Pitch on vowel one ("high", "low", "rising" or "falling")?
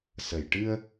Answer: low